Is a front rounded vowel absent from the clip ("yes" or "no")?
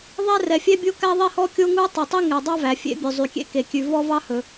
no